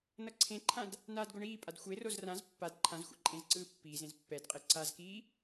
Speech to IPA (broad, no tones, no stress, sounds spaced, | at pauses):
n ʌ ǀʰ ẽ ǃʰ ã d | n aː d ɡ o ɳ iː pʼ a d xʷ e r o z r ã z pː a d ǃʰ ã z xʷ ḛ ǃʼ ẽ z ǀ ɯː pː iː z ẽ z pː ɛ d qʼ e ǀ a z k iː